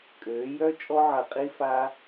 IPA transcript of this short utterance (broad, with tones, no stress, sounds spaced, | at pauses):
kʼ øː˨˦ j œ˦ t͡ʃʼ ɔ˦ ʕ ɐ˧ qʼ i˦ f aː˦